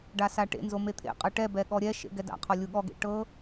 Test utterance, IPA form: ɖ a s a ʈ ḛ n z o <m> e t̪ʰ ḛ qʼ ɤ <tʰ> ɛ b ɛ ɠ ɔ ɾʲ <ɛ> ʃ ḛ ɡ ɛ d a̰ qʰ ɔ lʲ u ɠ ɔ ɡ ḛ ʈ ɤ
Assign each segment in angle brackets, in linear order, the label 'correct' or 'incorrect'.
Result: correct, incorrect: ʈ, correct

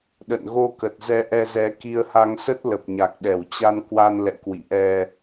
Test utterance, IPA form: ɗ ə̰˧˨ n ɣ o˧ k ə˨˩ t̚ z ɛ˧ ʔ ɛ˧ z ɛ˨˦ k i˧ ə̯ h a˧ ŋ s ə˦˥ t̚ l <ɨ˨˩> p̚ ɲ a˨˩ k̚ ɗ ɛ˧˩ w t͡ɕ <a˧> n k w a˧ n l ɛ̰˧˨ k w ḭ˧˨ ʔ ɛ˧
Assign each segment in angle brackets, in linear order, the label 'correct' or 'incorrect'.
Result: incorrect: ə˨˩, correct

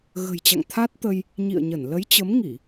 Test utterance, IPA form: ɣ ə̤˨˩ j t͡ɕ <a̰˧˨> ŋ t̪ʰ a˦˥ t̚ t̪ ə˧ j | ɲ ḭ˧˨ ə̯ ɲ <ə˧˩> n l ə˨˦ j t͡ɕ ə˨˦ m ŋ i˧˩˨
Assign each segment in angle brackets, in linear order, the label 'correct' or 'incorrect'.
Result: correct, correct

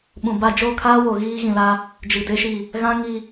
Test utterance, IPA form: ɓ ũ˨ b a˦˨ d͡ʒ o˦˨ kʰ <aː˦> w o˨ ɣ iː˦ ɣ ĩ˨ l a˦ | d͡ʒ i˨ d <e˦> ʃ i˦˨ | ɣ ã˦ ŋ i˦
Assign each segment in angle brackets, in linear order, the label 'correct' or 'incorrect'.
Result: correct, correct

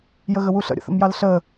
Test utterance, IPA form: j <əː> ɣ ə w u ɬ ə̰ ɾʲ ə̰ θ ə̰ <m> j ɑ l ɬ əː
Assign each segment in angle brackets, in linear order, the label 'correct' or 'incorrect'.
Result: incorrect: ə, correct

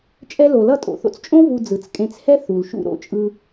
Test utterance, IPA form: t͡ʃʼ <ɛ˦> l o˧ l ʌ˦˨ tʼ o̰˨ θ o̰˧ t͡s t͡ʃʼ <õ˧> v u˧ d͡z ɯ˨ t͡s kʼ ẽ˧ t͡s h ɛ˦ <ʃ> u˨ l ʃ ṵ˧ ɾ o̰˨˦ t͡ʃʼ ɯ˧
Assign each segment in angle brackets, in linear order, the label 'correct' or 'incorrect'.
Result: correct, incorrect: õ˦, incorrect: θ

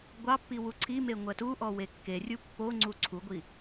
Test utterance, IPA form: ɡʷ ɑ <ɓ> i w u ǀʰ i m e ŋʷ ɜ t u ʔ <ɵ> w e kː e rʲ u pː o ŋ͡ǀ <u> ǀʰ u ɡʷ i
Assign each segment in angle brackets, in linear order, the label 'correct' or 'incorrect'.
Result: incorrect: pː, incorrect: ɔ, correct

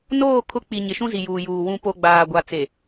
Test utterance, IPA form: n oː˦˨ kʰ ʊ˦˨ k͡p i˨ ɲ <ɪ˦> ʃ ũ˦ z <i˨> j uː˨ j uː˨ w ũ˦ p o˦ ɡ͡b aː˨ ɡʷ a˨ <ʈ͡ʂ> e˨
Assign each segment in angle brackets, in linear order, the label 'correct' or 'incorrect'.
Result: incorrect: ɪ˨, correct, incorrect: t͡s

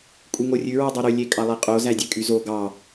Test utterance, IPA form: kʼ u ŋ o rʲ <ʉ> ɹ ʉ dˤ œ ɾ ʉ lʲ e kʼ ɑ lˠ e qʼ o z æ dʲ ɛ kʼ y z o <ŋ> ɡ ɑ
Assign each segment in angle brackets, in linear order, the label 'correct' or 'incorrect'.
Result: correct, incorrect: none

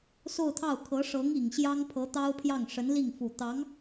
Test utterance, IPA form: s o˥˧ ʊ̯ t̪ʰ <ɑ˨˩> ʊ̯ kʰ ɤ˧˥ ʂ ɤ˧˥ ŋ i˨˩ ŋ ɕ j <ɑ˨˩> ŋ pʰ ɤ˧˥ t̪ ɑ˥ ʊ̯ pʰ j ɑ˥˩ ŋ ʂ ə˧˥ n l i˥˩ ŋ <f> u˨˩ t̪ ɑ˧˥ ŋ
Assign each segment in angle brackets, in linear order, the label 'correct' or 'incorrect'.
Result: incorrect: ɑ˥˩, incorrect: ɑ˥, correct

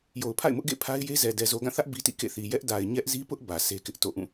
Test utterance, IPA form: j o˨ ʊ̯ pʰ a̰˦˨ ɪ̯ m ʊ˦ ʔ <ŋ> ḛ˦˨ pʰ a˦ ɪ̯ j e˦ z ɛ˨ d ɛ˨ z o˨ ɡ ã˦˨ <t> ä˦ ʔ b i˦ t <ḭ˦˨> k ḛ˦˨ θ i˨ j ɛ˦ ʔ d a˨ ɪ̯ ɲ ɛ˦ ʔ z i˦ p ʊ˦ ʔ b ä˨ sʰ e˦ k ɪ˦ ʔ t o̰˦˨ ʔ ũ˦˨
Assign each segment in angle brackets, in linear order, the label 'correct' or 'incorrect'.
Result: incorrect: ɡ, incorrect: θ, correct

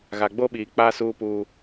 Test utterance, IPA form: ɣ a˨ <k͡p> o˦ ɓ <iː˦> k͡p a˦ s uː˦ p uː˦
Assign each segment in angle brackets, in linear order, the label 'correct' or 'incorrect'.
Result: incorrect: ɡ͡b, incorrect: iː˨

